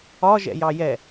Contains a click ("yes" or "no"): no